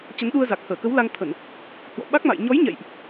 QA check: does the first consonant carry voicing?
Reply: no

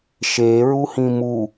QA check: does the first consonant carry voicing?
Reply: no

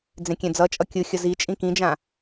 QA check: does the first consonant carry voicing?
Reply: yes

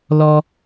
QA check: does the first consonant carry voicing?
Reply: yes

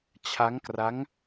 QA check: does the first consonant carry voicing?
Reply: no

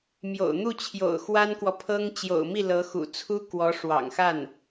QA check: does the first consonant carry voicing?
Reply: yes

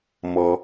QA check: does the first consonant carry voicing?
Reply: yes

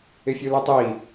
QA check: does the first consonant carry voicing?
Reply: no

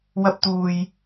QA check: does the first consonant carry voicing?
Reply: yes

